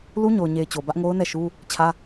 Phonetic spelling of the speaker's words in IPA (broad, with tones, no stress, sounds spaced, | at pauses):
l u˦ ɲ o˨ ʊ̯ ɲ e˨ ɪ̯ t͡ɕ o˨ b ä˦ ʔ ŋ o˦ ʊ̯ n ɛ˦˨ ʃ u˦ | t͡ɕʰ ä˦